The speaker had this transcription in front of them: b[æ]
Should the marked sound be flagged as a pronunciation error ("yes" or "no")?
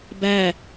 no